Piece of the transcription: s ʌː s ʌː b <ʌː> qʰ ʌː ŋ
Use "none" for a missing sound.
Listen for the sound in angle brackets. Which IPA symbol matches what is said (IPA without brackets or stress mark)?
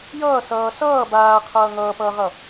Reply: aː